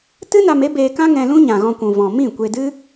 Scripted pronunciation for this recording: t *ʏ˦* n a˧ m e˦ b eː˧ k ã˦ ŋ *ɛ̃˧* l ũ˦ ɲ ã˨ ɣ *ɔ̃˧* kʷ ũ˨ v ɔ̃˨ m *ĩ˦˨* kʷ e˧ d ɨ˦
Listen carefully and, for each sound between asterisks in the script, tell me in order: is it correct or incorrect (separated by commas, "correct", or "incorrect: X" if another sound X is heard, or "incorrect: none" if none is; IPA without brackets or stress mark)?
incorrect: ɨ˦, correct, correct, correct